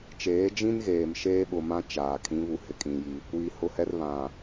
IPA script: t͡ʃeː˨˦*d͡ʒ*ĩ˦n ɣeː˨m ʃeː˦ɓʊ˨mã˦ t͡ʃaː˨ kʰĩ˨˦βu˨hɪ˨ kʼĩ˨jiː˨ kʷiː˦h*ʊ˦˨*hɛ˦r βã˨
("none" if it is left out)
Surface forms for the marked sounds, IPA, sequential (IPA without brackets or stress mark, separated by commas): d͡ʒ, ʊ˦